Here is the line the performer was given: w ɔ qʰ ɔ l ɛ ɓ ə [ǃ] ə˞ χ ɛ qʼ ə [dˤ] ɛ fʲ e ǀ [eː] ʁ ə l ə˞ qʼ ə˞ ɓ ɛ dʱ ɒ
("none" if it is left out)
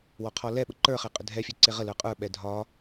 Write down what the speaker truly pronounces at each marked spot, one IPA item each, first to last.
ǃ, dʱ, e

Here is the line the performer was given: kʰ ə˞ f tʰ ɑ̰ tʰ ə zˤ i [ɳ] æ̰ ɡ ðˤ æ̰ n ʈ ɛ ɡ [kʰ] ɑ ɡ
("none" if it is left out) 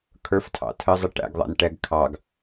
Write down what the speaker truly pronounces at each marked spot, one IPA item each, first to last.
ʈ, kʰ

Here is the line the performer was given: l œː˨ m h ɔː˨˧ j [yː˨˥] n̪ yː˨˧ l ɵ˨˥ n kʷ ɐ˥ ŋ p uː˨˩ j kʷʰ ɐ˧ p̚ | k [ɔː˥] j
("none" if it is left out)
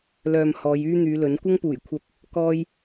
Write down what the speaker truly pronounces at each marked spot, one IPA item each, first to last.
yː˥, ɔː˥

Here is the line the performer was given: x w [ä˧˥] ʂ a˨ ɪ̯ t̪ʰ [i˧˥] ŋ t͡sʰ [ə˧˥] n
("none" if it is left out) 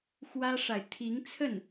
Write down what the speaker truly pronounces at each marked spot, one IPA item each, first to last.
ä˥, i˧˥, ə˥˩

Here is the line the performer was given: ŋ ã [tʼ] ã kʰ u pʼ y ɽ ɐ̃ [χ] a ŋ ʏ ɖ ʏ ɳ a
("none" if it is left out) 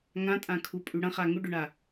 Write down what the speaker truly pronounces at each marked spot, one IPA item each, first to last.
tʼ, χ

